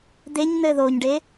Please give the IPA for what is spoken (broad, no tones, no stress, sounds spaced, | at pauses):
d̪ e ɲ n̪ ɘ ð o ɲ ɖ e